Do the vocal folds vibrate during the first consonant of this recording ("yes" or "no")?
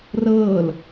yes